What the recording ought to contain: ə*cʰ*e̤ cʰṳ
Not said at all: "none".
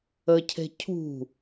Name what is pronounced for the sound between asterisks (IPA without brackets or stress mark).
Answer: cʰ